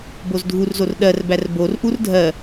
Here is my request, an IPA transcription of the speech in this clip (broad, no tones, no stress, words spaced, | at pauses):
bozdʱurzor ɗɜrbær borʔur dʱɜ